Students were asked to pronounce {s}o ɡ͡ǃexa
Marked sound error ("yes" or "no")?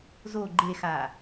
yes